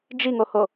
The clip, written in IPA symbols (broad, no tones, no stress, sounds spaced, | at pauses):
d͡ʒ i ŋ o h o